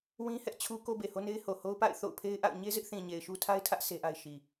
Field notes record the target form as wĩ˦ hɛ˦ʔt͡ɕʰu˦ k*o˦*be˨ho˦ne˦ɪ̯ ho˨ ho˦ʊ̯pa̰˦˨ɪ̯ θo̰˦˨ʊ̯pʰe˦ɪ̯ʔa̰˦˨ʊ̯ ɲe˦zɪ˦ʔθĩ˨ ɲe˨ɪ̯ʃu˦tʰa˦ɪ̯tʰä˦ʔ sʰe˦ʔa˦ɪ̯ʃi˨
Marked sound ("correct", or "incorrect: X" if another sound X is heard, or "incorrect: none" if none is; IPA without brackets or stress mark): correct